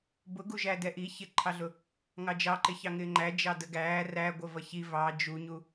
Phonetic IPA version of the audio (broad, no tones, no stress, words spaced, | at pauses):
bʊɡuʒæ dɛʔi çɪǃʰɑɮʊ | ŋɑd͡ʒɑǃɪçɑ ŋɪːŋ͡ǃæ d͡ʒɑdəɡæː ræ ɡʷəvʌçi vɑ d͡ʒuɲu